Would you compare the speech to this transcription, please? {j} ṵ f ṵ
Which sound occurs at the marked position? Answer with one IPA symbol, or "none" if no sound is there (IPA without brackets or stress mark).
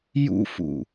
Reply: j